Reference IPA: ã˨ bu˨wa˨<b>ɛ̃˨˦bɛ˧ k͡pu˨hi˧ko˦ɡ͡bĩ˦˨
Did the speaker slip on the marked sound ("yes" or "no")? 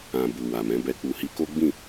yes